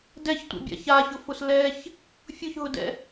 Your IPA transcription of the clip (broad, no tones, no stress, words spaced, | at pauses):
dɛçtʷa̰bʲa̰ çaçʊfʊs lɛç | fʲʊçɦʊdɛ̰